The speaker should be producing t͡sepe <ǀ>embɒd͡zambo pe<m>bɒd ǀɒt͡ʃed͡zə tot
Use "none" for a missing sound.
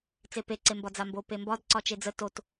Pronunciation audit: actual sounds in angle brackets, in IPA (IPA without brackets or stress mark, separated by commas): ǀ, m